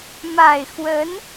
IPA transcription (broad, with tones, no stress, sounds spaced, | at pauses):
m a˨˩ ɪ̯ x w ə˧˥ n